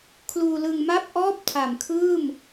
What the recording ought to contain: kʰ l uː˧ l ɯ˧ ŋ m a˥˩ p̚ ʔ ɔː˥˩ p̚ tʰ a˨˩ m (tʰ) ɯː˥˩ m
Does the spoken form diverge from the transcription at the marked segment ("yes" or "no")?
yes